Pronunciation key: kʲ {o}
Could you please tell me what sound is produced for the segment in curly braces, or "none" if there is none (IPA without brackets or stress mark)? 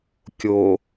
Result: o